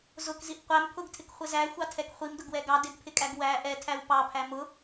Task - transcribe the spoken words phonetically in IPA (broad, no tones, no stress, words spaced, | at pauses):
zʊkziʔ qʷæm pʰʊɡtʰɪkχʷɪ zæxʷɑtʰɛk χʷimdʊɡwɛ ɡɑ dɪɡpʰɪkʼæɡ wæ ʔɛtʰæw pɑpʰæ mʊ